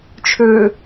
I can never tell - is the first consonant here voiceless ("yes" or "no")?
yes